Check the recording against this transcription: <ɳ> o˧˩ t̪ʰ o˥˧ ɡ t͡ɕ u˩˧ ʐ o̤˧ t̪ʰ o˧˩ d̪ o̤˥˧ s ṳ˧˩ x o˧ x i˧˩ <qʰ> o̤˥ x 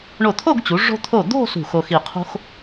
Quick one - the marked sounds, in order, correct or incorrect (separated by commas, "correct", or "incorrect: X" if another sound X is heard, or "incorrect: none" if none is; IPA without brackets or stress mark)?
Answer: correct, correct